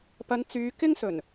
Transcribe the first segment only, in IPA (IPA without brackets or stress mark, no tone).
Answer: p